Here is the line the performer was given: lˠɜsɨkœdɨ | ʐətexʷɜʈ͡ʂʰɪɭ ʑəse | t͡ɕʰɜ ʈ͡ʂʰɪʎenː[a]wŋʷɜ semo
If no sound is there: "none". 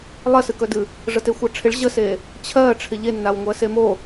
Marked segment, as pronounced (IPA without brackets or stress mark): a